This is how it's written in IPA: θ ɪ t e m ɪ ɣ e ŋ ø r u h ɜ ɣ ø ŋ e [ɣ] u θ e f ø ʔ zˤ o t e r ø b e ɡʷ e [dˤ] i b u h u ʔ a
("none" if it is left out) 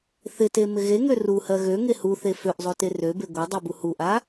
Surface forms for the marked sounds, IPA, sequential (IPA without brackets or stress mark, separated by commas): h, dˤ